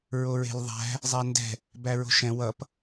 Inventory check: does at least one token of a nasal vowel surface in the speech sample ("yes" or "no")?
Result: yes